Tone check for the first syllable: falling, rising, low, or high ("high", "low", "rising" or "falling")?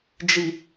low